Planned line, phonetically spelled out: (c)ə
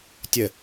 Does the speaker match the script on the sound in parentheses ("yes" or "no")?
no